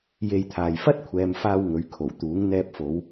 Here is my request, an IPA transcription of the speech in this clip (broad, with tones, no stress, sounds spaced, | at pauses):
j e˧ j t̪ʰ aː˨ j f ɐ˥ t̚ kʷʰ ɛː˨ m f aː˧ w ŋ ɵ˨ ɥ kʰ o˨˩ w t̪ uː˨˥ ŋ n̪ ɛː˧ p̚ f o˨˧ w